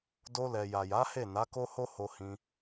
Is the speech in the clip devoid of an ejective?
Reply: yes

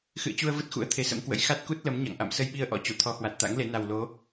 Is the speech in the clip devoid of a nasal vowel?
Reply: yes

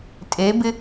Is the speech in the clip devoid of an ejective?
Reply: no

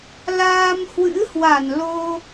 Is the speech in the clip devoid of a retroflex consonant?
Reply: yes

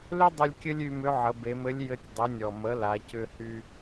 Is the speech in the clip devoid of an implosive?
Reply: yes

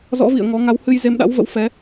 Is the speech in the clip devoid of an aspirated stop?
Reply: yes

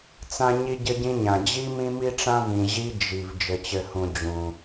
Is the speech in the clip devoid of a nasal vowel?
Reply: no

